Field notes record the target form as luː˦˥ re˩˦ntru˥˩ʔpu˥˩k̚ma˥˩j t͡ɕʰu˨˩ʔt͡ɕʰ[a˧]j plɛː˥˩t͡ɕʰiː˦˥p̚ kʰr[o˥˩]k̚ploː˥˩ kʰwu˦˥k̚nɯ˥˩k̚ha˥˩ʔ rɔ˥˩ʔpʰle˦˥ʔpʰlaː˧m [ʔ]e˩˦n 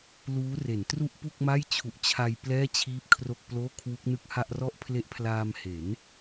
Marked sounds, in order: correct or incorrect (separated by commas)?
correct, correct, incorrect